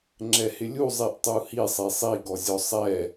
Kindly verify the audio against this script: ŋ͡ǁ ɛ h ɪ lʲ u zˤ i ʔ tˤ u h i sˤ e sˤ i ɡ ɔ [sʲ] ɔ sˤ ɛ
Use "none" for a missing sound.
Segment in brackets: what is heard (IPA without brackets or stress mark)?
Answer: zʲ